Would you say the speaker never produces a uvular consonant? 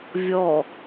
yes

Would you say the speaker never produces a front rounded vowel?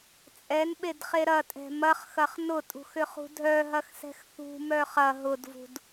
no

